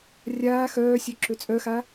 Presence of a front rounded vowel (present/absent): present